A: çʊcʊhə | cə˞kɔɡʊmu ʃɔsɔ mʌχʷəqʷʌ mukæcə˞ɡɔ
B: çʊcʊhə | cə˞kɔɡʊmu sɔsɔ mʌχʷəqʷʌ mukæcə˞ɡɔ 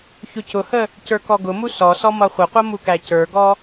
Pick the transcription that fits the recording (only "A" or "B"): B